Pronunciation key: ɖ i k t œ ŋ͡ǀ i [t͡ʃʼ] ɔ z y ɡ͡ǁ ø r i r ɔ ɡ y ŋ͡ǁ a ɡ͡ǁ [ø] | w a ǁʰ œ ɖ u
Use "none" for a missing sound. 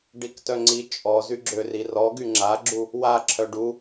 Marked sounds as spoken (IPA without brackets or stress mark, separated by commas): t͡ʃʼ, u